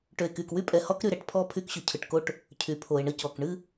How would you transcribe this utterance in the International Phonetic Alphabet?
ʈø˨e̯ky˨k wy˦pʼɛ˨ hɔ˦k ɾy˦˨ɾɛ˨ʈpʰɔ˦ pʰy˦kɕø˨cʰɯ˨ʈko˦ʈ | cʰy˨pʰo˨e̯ɳə˦ cɔ˨k ɳɨ˦

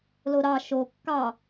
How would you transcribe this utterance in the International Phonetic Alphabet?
loɾɑ ʃo kːɑ

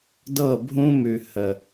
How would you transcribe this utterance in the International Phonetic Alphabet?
dɤ˦˨bʱũ˦mʉ˨ hə˨

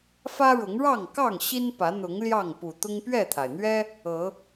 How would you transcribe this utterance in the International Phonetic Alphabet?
fä˦ɻʊ˨˦ŋɻɑ˥˨ŋkɑ˥˨ŋ ɕi˦npä˨˦n̪ʊ˨˦ŋ ljɑ˥˨ŋpu˨˩ t̪ʊ˦ŋpɥɛ˥˨t̪ʰa˩ɪ̯ n̪ɥɛ˦ | ɤ˨˦

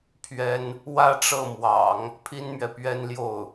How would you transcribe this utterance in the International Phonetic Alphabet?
pʰɥɛ˥n | wä˥˧ʈ͡ʂɤ˥˩mwɑ̰˨˩˦ŋ | pʰi˥nmɥɛ˨pɥɛ˥nljo˥˩ʊ̯

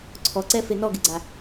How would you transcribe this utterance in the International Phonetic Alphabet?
ǀʰɔǀɛfe nɔɡɪɡ͡ǀa

